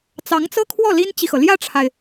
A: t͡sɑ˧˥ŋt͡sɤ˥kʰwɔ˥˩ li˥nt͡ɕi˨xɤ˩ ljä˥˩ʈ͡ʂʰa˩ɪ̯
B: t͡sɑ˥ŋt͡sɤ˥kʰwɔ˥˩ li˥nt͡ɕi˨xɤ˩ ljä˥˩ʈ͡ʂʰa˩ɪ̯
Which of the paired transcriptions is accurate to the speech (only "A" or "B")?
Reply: A